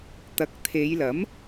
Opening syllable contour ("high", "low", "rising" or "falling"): rising